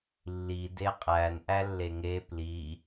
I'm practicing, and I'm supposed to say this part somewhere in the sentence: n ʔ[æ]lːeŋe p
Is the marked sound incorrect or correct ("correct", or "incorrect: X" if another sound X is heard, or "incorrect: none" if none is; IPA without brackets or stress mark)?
correct